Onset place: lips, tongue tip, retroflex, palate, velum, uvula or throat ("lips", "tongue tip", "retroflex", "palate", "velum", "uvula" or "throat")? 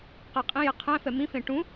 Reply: uvula